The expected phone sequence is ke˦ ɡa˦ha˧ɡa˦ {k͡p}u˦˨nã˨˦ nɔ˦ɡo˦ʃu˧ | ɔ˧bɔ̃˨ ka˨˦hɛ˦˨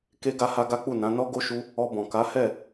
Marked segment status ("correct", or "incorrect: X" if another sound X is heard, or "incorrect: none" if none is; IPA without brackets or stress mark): correct